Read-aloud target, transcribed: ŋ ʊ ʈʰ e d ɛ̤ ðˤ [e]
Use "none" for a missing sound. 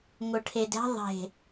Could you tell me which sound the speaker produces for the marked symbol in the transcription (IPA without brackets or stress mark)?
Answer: e̤